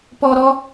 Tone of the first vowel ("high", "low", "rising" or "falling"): high